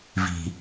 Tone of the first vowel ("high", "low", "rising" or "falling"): low